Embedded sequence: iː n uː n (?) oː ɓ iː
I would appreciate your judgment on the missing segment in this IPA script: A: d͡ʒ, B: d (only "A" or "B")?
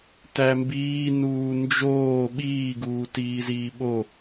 A